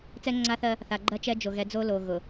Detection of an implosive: absent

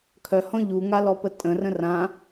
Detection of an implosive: absent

